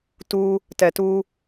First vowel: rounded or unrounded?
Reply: rounded